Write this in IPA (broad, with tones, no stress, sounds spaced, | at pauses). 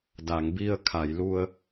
d a˩˧ ŋ b i˧ ə̯ kʰ a˩˧ j l u˧ ə̯